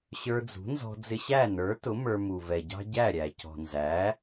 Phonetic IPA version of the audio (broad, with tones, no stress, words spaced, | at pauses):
ɕə˞˧d͡zṳ˩˥nzɔ̤˧ d͡zɪ˧ɕæ˥˩nə˞˩˥tʊ˩˥ mə˞˧ mu˩vɛ˩ɟɑ̤˥ ɟæ˥˩ɾʲæ˩ cɔ̤˩nzæ˩˥